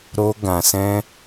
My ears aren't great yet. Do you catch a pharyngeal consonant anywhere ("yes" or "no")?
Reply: no